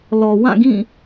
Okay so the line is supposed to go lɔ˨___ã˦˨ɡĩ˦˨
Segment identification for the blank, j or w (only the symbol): w